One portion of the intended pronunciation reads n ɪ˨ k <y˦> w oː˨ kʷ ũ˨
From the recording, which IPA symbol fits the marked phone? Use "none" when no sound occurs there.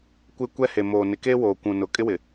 e˦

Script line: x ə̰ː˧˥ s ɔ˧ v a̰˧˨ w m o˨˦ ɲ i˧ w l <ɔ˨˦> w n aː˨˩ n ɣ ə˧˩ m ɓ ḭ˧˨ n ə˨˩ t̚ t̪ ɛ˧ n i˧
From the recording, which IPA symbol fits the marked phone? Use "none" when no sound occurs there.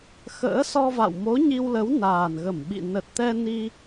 ə˨˦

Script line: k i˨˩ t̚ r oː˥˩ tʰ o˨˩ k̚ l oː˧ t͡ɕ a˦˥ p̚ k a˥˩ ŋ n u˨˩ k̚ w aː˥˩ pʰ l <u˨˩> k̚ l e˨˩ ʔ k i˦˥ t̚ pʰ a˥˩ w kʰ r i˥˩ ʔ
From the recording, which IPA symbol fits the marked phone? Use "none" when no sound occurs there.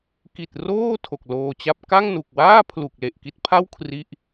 u˨˩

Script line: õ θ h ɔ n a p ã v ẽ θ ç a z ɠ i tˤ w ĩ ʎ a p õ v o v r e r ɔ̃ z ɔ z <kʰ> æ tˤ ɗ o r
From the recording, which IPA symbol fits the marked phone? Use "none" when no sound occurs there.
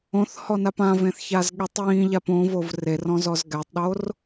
ɡ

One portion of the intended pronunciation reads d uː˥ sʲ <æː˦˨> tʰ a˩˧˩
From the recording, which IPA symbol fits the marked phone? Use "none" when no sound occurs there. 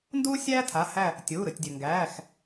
æː˥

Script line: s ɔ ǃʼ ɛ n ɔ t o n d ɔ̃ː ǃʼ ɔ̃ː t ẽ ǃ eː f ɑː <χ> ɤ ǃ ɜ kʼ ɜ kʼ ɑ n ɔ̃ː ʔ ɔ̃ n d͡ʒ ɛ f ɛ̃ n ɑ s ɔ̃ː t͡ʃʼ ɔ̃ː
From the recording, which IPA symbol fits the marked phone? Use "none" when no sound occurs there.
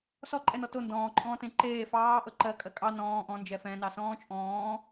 ʔ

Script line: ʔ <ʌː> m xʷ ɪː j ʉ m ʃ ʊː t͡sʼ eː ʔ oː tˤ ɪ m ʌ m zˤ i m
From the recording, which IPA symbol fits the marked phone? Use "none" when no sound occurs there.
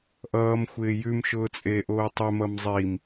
ʌː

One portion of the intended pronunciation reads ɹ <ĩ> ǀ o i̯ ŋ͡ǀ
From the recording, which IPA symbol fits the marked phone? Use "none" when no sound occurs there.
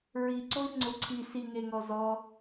i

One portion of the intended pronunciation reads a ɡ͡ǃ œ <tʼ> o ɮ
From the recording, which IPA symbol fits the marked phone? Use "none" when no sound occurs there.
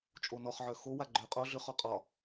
qʼ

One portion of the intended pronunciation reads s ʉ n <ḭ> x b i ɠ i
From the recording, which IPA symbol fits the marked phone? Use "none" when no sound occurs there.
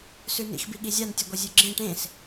ḭ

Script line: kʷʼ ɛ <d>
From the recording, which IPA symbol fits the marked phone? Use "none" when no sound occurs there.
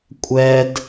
d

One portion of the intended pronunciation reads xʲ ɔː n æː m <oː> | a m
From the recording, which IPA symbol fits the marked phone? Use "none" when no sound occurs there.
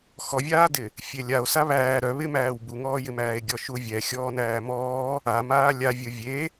ɔː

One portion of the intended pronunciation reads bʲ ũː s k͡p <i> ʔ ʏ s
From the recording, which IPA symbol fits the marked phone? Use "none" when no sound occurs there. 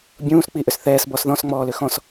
i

